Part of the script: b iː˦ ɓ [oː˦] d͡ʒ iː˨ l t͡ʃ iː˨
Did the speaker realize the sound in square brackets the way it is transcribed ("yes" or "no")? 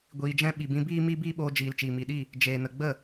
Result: no